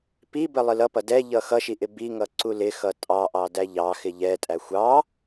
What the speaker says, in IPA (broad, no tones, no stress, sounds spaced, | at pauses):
p i b ə lˠ ɪ l ʌ p ʌ d ɛ ʎ ʌ x ʌ ʃ i ʔ ɪ b i ŋ ʌ ǀ u l ɪ x ʌ tʼ ɑ ʔ ɑ d æ ʎ ɑ x ɪ ʎ ɛ tʼ æ xʷ ɑ